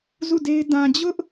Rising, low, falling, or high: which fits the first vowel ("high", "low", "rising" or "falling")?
falling